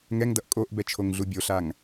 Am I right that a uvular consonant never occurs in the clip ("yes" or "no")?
yes